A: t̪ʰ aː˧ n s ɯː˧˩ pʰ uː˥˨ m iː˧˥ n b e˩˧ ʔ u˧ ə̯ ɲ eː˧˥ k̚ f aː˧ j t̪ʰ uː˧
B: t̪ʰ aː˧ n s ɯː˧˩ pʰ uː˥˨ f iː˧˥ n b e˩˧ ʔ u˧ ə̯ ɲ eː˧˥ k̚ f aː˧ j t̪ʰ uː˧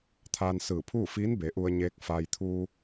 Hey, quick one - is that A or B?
B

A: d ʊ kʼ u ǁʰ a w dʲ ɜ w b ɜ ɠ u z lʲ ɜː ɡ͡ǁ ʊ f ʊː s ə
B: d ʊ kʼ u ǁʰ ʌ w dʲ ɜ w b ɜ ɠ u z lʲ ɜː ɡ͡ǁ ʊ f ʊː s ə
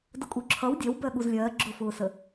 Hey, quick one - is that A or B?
B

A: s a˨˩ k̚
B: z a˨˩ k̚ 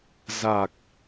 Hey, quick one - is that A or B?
B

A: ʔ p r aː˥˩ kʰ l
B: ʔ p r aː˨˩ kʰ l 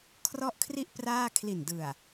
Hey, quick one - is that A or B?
A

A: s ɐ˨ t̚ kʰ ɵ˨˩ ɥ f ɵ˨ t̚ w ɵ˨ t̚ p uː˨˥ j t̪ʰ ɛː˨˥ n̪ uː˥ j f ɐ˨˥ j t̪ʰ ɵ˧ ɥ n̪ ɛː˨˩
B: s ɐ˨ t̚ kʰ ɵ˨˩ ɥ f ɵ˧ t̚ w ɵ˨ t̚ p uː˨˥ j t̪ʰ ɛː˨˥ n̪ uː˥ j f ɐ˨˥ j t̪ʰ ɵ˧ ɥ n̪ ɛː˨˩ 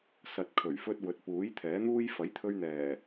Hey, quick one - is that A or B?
B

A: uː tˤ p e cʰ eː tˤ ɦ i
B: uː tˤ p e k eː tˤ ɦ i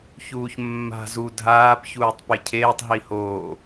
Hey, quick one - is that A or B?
A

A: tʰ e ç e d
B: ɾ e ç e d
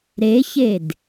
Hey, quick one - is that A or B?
B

